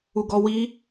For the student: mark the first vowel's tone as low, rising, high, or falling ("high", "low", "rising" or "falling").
high